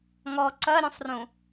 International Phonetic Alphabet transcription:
ŋ ɔ ǀ ɐ ɾʲ ũ sˤ r ũ

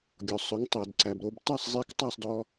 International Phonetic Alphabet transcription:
ɡʲ ɔ˩ sˤ ɵ˩˥ ŋ tˤ œ˩ d ǀ æ˩ b ɾ o˧ b t ɑ˥˩ sˤ zˤ i˧ k tˤ ɑ˥˩ sˤ d ɔ˧

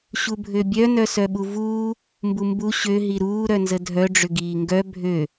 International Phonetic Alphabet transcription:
ɕ u bʱ ø bʲ œ n œ s œ ɓ u v uː | m b u m b u ɕ ø ɦ i ɾ uː ɾ œ n z ə dʱ œ ɖ͡ʐ ʏ ɡ iː ŋ ɡ œ bʱ ø

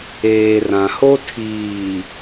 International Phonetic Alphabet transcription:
eː˨ r ã˨ h o˦ tʰ iː˨

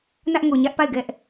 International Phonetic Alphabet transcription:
n ä˦ ʔ ŋ o˨ ɲ ä˦ ʔ p a˦˨ ɪ̯ ɡ ɛ˦ ʔ

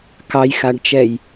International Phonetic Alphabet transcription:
k ɑ j x a ɖ t͡ʃ ɛ j

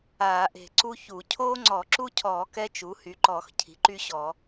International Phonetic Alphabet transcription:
aː˧˩˧ ʔ e̤˧˩˧ ǀ u˥ ç u˧˩˧ cʰ oː˥ ŋ͡ǀ ɔ˧˩˧ ǁ u˥ cʰ ɔː˧˩˧ k ɛ˥ t͡ʃ u˩˥ h y˩˥ ǃ ɔ˧˩˧ x cʰ i̤˩˥ ǃ y˥ ɕ ɔ˧˩˧

